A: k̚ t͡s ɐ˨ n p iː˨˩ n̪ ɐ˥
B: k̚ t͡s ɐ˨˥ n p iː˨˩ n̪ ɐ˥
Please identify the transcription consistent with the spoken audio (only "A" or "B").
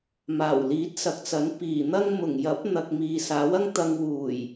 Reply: B